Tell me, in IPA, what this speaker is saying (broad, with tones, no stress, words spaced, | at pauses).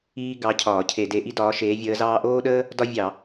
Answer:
iː˥ ɡɑ˧˥cʰɒː˧˩˧ cʰe˧˩˧de˧˥ʔi˥ dɒː˧˥ʃeː˧˥vʲəː˧˥zɑː˥ ʔoː˥ɗəː˥ | dɒ˥vʲɑ˧˩˧